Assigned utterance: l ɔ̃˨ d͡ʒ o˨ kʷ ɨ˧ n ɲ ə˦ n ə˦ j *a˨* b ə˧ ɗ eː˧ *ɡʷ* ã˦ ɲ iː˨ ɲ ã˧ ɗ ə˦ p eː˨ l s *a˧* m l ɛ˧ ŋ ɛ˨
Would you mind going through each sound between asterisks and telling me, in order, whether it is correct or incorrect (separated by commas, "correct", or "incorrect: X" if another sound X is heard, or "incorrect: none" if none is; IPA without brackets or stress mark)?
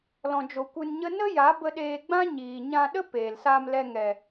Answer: incorrect: a˨˦, incorrect: ɡ͡b, incorrect: aː˧